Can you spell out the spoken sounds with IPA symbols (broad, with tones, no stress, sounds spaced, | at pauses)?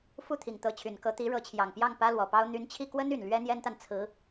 f u˥˩ t̪ʰ i˨˩ ŋ t̪ ɤ˧˥ t͡ɕʰ y˨˩ n k ɤ˧˥ t̪ i˧˥ ɻ ɤ˧˥ t͡ɕʰ j ɑ˨˩ ŋ p j ɑ˥˩ ŋ p ä˥ l w ɔ˨˩ p ɑ˥ ʊ̯ n̪ y˧˥ n t͡ɕʰ i˥˩ k w ə˥ n y˨˩ n l ɥ ɛ˥ n̪ j ɛ˥ n t̪ a˨ n t͡sʰ ɹ̩˧˥